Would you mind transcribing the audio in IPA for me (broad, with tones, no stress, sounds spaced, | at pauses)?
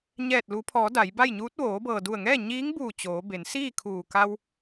ɲ ɛː˧˩ t̚ l u˩˧ pʰ ɔː˩˧ d a˩˧ j b a˥˨ j ɲ uː˧˥ t̚ ʋ oː˩˧ b ɤː˩ d u˧˩ ə̯ ŋ ɛː˥˨ ɲ iː˧˥ ŋ b uː˧˩ t͡ɕ oː˩˧ b e˩˧ n s iː˥˨ kʰ uː˧˩ k a˧ w